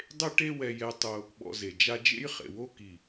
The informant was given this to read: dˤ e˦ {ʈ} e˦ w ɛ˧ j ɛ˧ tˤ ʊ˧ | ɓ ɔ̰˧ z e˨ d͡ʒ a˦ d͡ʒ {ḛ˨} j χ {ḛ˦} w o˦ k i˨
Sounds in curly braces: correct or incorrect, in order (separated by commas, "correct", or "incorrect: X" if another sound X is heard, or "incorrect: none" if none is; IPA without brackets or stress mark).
correct, incorrect: ḛ˦, incorrect: ḛ˨